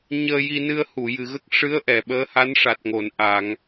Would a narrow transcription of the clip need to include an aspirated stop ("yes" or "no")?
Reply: no